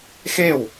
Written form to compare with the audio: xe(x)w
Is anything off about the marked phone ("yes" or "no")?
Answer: yes